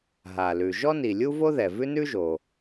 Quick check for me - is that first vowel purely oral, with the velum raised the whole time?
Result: yes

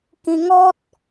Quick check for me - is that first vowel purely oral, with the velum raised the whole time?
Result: no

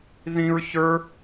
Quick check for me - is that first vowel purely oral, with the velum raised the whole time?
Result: no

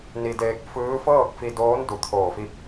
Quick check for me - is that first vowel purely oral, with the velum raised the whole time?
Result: yes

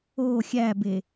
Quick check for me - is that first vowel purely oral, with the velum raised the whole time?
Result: yes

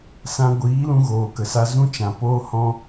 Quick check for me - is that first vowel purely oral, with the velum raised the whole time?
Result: no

